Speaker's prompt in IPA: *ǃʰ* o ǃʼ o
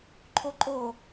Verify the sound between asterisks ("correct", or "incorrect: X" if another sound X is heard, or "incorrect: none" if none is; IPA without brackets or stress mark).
correct